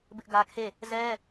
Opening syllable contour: high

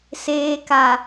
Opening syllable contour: low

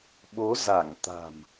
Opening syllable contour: rising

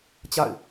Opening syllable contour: falling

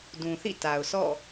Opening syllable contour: low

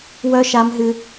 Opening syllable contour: high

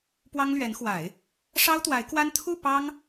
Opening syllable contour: high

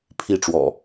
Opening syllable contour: falling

